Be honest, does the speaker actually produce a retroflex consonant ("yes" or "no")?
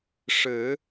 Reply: yes